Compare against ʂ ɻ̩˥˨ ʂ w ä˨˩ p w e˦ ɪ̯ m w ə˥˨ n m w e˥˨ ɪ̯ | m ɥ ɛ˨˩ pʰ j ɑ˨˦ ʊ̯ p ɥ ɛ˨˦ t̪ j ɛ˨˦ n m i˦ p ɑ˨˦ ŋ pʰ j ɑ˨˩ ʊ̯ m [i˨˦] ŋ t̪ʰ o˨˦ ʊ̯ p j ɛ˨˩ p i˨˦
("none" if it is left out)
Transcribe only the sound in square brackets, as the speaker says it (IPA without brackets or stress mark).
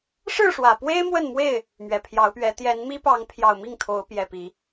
i˥˨